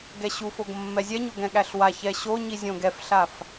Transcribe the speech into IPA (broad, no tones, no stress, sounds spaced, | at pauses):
ɡ ɛ ɕ u f o ɡ mː ɛ zʲ ɛ ɲ o ɡ ɛ̃ ɠ æ ɬ w a ç ɛ ɕ o ɲ i zʲ õ ɡ ɛ f ɬ a f